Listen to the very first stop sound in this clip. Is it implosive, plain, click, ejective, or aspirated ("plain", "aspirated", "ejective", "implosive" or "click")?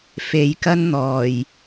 plain